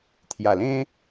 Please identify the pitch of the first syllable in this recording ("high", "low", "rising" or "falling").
low